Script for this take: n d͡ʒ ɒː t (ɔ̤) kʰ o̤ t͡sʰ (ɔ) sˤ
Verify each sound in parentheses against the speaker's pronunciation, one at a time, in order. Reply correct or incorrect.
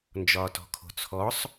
correct, correct

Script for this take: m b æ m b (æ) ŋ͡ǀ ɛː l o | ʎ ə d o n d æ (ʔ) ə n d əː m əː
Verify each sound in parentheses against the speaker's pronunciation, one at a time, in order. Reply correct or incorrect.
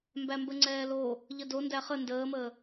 incorrect: ə, incorrect: χ

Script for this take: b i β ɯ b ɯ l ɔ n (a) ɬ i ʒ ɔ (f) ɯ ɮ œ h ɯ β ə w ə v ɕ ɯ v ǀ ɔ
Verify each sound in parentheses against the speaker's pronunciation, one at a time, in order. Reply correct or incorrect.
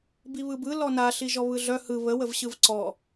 correct, incorrect: β

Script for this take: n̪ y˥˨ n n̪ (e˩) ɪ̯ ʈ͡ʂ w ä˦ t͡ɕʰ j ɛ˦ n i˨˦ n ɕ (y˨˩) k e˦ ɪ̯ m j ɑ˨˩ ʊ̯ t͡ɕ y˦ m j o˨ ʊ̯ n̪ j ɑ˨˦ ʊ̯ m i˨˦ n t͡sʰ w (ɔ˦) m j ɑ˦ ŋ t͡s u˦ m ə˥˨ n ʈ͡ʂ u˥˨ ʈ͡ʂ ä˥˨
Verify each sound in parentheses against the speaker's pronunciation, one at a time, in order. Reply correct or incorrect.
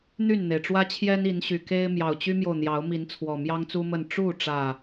correct, correct, incorrect: ɔ˨˩

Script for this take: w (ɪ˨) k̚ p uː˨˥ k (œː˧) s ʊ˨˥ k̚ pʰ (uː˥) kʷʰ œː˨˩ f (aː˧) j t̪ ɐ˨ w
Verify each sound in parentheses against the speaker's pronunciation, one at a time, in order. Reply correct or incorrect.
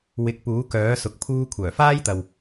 incorrect: ɪ˨˥, incorrect: œː˨˥, incorrect: uː˧, incorrect: aː˥

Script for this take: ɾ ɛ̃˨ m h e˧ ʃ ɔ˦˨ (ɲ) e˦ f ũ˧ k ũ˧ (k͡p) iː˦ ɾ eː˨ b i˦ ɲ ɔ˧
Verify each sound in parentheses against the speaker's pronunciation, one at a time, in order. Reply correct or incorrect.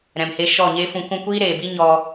correct, incorrect: kʷ

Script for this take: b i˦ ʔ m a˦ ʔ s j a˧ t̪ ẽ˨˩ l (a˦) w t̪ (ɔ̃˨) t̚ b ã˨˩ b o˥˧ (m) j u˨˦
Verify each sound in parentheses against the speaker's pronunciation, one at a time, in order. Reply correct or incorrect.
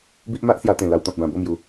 incorrect: a˧, correct, correct

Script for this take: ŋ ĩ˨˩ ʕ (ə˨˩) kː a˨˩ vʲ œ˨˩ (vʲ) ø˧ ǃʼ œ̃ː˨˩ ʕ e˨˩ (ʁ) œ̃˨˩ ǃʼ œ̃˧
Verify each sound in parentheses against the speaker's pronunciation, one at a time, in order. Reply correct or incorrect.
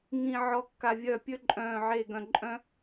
incorrect: ɔ˨˩, incorrect: pʲ, incorrect: ɡ

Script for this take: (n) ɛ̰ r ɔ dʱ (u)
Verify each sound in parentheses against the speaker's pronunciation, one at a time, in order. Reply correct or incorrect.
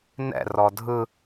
correct, incorrect: ɯ

